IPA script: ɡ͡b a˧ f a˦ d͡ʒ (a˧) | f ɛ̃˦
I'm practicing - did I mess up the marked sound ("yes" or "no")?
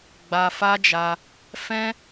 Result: no